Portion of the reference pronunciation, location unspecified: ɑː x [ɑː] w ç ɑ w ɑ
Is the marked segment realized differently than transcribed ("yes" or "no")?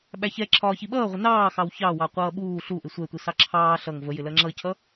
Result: yes